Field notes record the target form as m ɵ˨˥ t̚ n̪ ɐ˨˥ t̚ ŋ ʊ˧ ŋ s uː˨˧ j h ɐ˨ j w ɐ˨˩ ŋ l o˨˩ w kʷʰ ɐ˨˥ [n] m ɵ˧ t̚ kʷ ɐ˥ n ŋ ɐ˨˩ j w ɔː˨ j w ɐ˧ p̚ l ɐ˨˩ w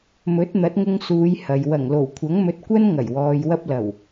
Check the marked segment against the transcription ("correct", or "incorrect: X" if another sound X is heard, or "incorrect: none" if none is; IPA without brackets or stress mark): incorrect: ŋ